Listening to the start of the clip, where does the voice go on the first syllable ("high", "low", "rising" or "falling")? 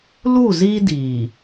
falling